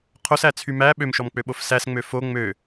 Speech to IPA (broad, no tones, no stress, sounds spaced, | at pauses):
qʰ o s æ t͡sʰ y m æ ɓ ø m ʃ ɔ m k͡p ø ɓ o f s æ s ŋ͡m ø f o ŋ͡m ø